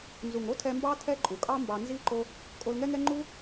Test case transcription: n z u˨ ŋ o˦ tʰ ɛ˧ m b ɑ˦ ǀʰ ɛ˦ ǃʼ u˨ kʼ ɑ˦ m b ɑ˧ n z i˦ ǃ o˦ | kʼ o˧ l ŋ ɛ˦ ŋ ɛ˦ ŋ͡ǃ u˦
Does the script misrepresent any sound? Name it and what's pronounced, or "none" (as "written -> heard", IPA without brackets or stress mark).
ǀʰ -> tʰ